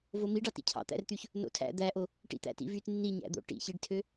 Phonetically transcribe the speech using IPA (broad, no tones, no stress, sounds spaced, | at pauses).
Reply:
v o m i ɖ ɑ t ḭ cʰ ɑ̰ t̪ æ̰ r t̪ y ç | n o̰ tʰ æ̰ d̪ æ ʔ o | ʈ ḭ t̪ æ̰ t ḭ v y t nː i ɲ æ̰ d̪ o̰ ʈ ḭ ç i ɖ tʰ ø